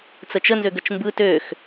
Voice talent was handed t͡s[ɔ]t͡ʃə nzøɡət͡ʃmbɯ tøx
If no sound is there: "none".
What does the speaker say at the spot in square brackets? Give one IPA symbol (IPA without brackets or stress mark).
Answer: ə